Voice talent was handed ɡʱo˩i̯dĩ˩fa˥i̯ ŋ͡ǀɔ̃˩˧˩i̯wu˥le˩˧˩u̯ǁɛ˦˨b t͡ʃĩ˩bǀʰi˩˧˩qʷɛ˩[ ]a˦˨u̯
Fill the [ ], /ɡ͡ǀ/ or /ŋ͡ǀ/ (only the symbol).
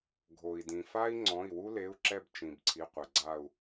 ɡ͡ǀ